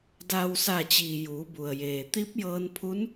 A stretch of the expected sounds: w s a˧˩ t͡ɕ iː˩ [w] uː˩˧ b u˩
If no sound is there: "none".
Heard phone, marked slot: j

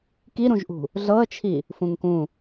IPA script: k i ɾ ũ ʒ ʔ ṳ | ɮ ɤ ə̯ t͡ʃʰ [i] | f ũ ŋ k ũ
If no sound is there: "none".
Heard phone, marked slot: i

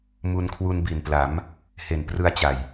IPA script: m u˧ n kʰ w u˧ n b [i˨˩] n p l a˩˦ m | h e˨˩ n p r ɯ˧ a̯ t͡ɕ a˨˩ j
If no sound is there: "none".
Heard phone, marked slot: i˨˩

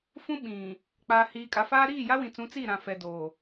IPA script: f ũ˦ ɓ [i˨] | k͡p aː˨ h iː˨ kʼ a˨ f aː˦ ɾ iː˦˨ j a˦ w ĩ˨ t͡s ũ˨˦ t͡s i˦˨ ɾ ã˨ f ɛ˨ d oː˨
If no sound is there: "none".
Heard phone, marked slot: ĩ˨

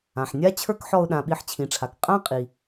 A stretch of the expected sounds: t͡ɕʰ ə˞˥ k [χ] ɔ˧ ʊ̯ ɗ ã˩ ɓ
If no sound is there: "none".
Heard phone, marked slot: ħ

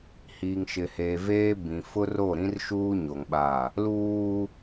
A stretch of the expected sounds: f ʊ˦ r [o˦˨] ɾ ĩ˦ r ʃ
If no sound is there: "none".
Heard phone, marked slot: o˦˨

